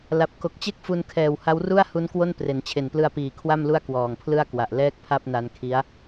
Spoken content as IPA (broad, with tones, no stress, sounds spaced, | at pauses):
l a˨˩ p̚ k o˨˩ k̚ t͡ɕ e˥˩ k̚ f u˧ n kʰ ɛː˨˩ w h a˦˥ w r u˥˩ a̯ h u˦˥ n k w o˥˩ n p r e˩˦ n t͡ɕʰ e˨˩ n p l ɯ˧ a̯ p iː˨˩ kʰ w a˥˩ m l u˥˩ a̯ k w ɔː˨˩ ŋ pʰ l ɯ˥˩ a̯ k w a˨˩ ʔ l ɛː˥˩ k̚ pʰ a˥˩ p̚ n a˧ n kʰ i˦˥ a̯